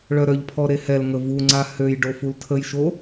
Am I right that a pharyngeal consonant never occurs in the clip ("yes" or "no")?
yes